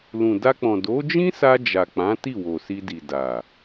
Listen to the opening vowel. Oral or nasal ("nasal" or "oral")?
nasal